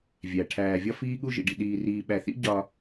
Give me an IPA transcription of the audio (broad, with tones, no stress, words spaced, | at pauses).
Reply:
vʲæ˨ ʈʰæː˨vʲɒ˦ fiː˦ɠu˦ʒḭ˨ɖḭ˨ ɗiː˨riː˨ɓæ˨θḭ˦ ɟɒː˦